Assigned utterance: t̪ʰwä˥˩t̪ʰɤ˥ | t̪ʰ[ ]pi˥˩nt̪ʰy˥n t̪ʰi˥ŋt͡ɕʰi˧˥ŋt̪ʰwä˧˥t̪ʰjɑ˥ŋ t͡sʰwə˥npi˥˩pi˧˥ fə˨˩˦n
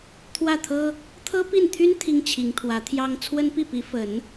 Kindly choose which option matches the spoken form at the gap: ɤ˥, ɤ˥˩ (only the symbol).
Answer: ɤ˥